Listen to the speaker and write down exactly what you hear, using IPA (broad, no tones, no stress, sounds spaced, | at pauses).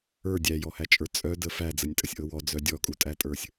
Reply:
ə˞ dʲ æ j ɔ h æ t͡ʃʼ ə˞ t͡sʼ œ d ə f æ d͡z ə nʲ tʼ ə sʲ ʔ ɤ w ɔ d͡z œ dʲ ɔ kʼ u tʼ æ tʼ ə˞ sʲ